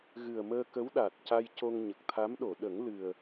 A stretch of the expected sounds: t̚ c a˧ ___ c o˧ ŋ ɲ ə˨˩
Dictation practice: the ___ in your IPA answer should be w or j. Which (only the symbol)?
j